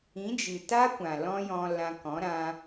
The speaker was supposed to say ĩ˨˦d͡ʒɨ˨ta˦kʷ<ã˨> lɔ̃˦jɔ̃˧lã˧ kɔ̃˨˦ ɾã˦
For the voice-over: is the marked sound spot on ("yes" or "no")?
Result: yes